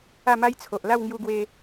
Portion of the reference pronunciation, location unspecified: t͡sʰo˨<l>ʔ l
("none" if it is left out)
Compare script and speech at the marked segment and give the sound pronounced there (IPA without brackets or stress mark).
none